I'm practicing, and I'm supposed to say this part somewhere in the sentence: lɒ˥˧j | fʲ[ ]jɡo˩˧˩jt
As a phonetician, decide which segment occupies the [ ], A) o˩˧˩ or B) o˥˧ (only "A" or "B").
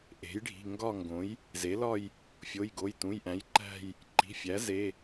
A